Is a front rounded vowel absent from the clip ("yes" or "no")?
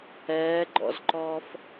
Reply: yes